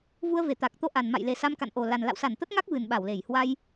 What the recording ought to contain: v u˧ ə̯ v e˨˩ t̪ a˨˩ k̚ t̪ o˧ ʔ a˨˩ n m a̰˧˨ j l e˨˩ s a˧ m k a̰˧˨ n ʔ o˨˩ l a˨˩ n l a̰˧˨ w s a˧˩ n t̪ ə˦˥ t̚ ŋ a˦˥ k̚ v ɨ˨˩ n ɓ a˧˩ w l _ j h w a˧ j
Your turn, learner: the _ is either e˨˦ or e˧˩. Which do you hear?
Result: e˧˩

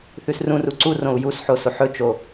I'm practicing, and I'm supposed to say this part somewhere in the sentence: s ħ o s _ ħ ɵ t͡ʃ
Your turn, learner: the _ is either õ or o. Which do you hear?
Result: o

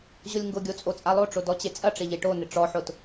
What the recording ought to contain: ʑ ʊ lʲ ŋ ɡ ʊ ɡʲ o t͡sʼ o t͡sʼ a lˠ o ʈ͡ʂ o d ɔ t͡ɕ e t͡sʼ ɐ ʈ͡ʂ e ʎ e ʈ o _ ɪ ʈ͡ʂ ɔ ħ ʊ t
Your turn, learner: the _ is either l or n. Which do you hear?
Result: n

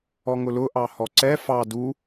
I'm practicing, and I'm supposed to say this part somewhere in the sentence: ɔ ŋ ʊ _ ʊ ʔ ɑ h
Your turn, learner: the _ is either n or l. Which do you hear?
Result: l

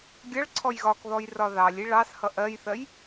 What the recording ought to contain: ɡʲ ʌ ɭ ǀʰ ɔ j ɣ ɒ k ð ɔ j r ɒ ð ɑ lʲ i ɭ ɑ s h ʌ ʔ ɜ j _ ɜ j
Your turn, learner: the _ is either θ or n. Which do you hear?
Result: θ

